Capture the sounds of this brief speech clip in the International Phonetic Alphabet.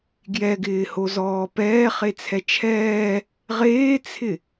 ɡjɛɡɪːhozɔː pɛːχet͡sʰɛ t͡ʃʰɛː | ʁeːt͡sʰɪ

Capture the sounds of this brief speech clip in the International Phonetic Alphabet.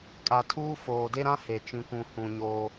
kʼa˨tʰuː˦ foː˨ de˦ɾã˦he˨ t͡ʃĩ˨kʷũ˨ hũ˨ ɲoː˦

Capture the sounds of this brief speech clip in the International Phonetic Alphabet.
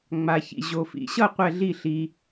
ŋ͡ma˩çḭ˩ ʑo˩fḭ˩ɕʌ˥˩ qʷɛ˥˩ɮi˥˩ɬi˩

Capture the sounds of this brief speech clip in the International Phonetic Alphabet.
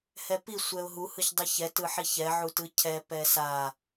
hɛpi sʷɛʊ̯ɦu hɯçdˤɯçɛ tɯħiçɛ ʕutɯcʰɛ pɛsa

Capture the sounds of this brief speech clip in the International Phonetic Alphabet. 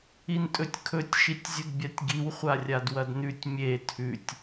intʼɵtʲkʰɵtʲ ʃitʲzʲudbʲatʲɡiw χʷarʲadwɐdnʉtʲ mʲe tʰʉtʲ

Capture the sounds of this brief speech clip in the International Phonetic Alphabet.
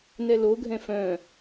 nɛloɡʱɛ̃ fœ̃

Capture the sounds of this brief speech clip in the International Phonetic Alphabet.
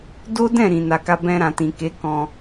do˦dɛ̃˦˨ ɾĩ˨ na˨ka˧ bɛ̃˧ɾã˨tĩ˨ke˨˦ kɔ̃˧

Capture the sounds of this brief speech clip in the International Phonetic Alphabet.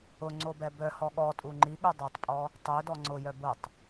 ʊ ŋ͡ǀobɛbœhɔ ɠɔtʼu ŋ͡ǃiɠu dˤøtˤpʼɔ | tˤø dɔŋ͡ǀʊjœ bʊtˤ

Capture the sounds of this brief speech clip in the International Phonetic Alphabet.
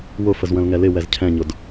wʊfəz wə̃lŋɛlɪ wɛzcʰɛ̃ɲʊd

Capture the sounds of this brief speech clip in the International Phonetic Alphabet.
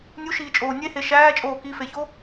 nʲuʃiːt͡ʃʼoː nʲehe ʃæːt͡ʃʼoː kifeço

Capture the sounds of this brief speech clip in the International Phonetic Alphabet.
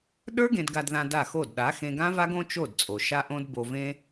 ɗə˞˦ ɡẽ˧dɡa˧dðã˧ da˦˨xo˦˨d ɗa˨˦xẽ˧ɡã˦va˦ɡ õ˦t͡ʃo˦˨dt͡sʼo˨ ʃa˦ʔõ˦d bo˦ vẽ˦

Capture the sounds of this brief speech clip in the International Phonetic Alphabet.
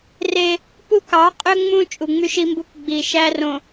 re˦ | pu˦kɑ˨˦qʼø˦ ŋ͡mũ˦ t͡ʃʼu˨ŋ͡my˦ʃi˦mbu˦k ɡ͡bi˨ ʃæ˦rõ˨

